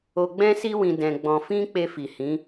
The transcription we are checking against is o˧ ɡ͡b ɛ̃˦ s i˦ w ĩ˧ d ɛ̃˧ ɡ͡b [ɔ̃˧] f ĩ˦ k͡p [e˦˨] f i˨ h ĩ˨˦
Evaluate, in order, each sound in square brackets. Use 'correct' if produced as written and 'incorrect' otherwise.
correct, incorrect: e˧

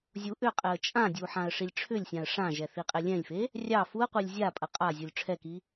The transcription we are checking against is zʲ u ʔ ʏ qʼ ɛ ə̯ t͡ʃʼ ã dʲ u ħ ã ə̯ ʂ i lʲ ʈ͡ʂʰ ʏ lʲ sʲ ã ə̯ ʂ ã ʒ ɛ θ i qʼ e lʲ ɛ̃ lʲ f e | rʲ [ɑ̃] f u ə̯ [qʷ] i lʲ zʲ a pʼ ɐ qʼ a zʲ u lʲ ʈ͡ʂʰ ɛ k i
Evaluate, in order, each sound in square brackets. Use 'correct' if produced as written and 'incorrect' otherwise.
incorrect: ɑ, correct

